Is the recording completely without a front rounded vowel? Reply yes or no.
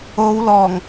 yes